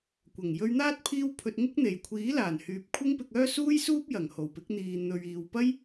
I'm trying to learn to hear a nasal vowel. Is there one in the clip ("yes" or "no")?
no